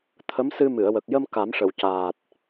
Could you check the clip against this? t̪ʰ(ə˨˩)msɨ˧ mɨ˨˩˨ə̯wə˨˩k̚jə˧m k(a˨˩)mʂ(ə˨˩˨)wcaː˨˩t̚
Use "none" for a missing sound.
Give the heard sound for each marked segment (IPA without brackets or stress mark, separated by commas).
ə˧˥, a˨˩˦, ə˨˩˨